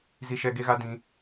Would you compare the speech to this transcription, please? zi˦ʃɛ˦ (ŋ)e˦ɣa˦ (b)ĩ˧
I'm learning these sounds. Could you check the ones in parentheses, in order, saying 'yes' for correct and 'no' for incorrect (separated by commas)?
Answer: no, no